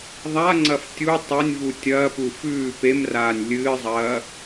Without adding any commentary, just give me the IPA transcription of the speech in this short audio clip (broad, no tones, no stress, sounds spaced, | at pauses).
ðˤ a ŋ͡ǀ ɐ f tʲ u tˤ ɐ nʲ v u tʲ ɐː p u f ʉː p e m r aː nʲ lʲ ɨː zˤ ɐː